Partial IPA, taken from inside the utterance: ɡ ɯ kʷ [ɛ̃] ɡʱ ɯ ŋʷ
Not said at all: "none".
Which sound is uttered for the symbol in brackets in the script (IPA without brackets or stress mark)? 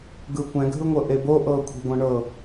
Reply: ɛ̃